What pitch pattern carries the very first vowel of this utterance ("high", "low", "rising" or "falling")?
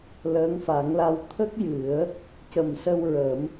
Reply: rising